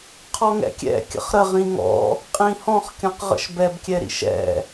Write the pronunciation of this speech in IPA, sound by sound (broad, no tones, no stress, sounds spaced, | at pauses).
qʰ ɔ ŋ ɛ̰ kʲ ɛ̰ kʲ ə̰ χ ɾ ə ʁ ĩ ŋ ɔ̰ | qʼ ĩ h ɔ̃ χ kʲ ɔ̃ q ʁ ə̰ ʃ b ɛ b kʲ ɛ ɾ ḭ ʃ ɛ̰